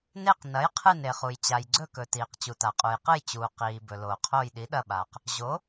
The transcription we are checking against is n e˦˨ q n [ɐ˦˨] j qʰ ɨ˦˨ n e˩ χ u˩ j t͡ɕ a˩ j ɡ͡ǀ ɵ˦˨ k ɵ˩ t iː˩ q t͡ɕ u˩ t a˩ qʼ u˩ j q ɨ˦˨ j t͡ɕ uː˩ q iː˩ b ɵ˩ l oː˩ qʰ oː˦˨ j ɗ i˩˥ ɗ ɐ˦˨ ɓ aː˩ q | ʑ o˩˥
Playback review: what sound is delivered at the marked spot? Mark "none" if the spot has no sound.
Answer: ɐ˩˥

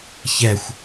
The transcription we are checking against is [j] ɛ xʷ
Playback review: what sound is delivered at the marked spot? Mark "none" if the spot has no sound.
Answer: ç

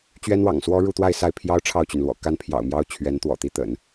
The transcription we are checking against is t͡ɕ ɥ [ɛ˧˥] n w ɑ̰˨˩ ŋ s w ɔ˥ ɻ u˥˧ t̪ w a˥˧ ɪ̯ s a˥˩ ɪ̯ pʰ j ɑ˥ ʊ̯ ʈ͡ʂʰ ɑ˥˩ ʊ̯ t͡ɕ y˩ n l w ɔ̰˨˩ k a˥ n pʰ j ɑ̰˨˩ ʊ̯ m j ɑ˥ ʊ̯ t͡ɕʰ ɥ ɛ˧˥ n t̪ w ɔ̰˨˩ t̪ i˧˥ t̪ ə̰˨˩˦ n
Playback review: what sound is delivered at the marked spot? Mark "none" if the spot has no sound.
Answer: ɛ˥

